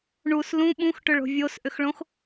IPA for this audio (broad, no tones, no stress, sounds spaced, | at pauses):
ɳ u s l ũ ɓ ũ x ʈ ʏ ɭ o̤ vʲ o s ʔ ʏ x ɭ õ x